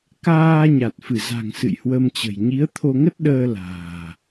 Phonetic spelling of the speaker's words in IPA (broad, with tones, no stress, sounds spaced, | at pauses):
k aː˧ ɲ a˨˩ t̚ f ɨ˧˩ z a̤˨˩ ŋ s ɨ̰˧˨ j h w ə˧ m t͡ɕ ə̤˨˩ j ɲ i˨˦ ə̯ t̪ʰ o˧ ŋ ə˦˥ t̚ ɗ əː˧ l a̤ː˨˩